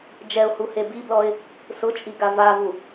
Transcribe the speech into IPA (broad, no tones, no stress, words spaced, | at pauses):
d͡ʒɛʊ̯huhe biblɔɪ̯ | sʊt͡ʃʼiɡa vavu